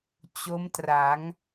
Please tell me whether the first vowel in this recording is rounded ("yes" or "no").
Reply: yes